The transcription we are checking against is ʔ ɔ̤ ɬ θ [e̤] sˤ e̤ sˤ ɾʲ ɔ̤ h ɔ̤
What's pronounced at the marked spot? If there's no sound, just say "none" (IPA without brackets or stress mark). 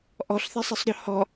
e̤